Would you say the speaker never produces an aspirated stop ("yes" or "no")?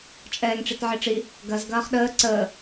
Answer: yes